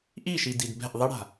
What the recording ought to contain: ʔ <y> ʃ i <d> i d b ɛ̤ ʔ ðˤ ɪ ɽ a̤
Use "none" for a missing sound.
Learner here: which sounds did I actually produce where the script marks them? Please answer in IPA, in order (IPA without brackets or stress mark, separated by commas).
i, d